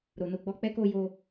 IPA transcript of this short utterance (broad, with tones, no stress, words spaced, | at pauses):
ɾo˨no˧ɡ͡bɔ˧k͡pɛ˦ ko˧jo˧